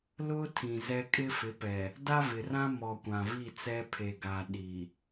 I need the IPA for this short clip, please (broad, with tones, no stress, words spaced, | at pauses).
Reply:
lʊ˦ tʰĩ˨zɛ˦ kʼɪ˦fɪ˨˦pɛ˨ | da˦vɪ˨rã˦ mɔ˨ kʷã˨vi˦˨t͡sɛ˦ pʰe˨ɡa˨ ɗi˨